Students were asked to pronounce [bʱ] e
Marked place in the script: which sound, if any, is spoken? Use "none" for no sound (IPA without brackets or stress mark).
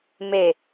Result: m